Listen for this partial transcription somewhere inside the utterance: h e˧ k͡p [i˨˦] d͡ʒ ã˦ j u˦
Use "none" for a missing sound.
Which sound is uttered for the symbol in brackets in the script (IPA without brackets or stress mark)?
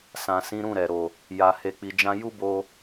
i˧